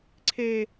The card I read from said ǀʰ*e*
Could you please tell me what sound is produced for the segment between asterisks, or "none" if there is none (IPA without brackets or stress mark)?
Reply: e